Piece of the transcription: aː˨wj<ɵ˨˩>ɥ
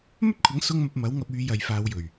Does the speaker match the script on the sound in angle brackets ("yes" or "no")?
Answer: yes